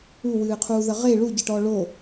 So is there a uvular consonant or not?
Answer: yes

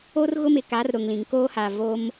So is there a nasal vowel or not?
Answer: yes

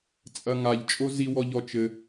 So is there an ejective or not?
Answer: yes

